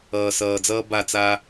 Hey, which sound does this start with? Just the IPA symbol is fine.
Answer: ʌː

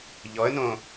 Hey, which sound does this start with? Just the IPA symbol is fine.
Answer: ʎ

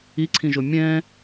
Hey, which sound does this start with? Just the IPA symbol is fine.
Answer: i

